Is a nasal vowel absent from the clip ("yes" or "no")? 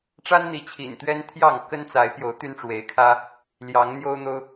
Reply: yes